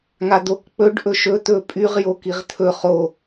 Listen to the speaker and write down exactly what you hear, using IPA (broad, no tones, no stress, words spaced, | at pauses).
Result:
ŋad̪ok k͡pɵɖ ʔɵʃɵ t̪ɵpʼyʁ jokiʁt̪ʰɵ χo